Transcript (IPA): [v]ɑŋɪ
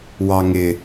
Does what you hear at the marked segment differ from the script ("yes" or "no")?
yes